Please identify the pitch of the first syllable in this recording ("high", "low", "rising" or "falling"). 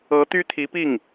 rising